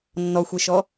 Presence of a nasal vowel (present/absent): absent